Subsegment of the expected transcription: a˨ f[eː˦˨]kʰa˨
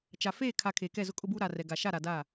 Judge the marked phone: correct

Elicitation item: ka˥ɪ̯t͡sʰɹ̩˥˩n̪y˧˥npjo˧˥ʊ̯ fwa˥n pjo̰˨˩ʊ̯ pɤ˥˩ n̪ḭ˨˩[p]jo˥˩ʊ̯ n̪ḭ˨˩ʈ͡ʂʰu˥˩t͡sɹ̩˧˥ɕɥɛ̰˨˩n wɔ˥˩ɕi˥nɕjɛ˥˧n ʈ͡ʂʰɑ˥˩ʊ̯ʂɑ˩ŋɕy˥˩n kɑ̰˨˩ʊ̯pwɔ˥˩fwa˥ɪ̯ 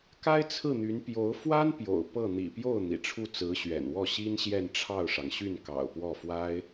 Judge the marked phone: correct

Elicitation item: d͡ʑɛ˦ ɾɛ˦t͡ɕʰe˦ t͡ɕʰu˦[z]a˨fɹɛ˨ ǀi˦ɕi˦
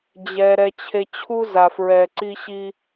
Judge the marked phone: correct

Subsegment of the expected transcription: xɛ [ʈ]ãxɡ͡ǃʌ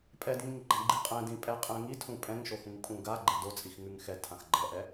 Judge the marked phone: incorrect: tʰ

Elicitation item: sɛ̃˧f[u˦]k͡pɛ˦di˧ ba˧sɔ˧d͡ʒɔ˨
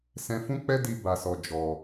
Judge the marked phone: incorrect: ũ˦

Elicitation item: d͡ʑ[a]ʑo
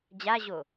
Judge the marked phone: correct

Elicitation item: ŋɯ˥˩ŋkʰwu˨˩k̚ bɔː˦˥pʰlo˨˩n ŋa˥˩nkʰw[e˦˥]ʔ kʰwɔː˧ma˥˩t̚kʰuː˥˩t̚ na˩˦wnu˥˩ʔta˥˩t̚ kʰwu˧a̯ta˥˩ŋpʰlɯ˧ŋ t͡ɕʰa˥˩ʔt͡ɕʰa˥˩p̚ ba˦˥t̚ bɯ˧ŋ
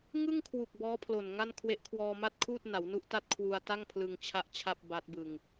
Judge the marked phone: correct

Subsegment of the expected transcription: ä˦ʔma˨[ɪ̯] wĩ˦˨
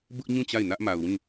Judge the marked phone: incorrect: ʊ̯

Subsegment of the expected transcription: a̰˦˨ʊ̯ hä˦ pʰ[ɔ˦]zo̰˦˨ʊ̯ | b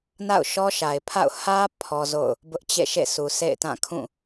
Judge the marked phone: correct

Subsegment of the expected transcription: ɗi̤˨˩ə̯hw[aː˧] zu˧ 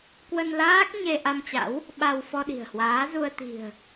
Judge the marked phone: incorrect: aː˨˦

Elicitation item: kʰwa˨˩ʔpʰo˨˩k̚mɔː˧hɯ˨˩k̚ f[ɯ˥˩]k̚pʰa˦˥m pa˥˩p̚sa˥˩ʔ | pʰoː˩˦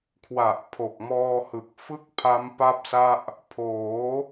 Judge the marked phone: correct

